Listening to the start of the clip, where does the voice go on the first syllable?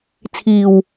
low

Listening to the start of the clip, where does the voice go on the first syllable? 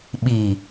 low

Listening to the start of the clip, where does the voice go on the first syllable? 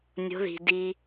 rising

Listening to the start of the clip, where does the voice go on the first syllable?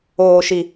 low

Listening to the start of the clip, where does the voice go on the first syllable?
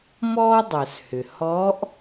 high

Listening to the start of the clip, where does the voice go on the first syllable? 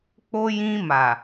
high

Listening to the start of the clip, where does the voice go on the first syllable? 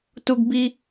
high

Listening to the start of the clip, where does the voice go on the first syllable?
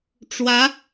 rising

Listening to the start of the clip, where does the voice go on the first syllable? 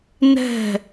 falling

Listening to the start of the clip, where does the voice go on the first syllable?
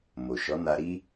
low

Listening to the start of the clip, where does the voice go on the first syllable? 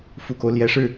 low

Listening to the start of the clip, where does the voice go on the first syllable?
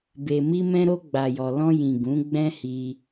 low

